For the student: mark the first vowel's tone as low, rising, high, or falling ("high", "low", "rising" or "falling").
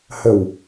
low